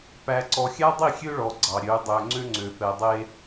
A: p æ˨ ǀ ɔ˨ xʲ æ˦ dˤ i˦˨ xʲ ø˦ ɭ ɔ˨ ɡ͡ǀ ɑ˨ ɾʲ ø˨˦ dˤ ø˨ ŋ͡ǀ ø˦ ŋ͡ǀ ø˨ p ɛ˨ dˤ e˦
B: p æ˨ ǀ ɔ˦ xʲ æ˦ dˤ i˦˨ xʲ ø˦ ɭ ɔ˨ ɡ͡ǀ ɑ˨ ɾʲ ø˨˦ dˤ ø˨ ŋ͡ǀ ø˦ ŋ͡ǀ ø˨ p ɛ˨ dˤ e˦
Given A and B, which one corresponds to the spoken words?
A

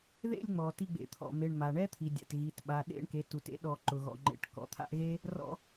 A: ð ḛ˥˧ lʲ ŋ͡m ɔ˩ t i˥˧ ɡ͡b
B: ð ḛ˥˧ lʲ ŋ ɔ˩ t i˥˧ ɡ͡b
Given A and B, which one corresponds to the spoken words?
A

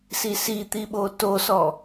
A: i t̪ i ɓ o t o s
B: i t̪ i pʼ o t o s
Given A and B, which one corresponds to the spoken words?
A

